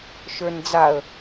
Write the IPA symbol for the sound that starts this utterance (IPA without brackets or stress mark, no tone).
ʃ